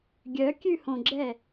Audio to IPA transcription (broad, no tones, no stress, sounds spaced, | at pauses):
ɡʲ œ kʲ ʉ h õ ɡ͡ǁ ɛ